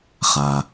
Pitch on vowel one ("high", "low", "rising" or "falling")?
low